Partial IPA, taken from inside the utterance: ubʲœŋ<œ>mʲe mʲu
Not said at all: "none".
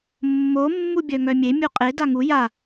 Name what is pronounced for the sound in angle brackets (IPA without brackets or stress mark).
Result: œ